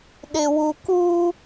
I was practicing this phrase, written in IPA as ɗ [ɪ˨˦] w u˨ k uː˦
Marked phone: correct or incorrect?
incorrect